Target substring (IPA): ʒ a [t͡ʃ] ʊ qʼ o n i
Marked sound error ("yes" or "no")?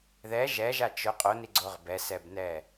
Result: no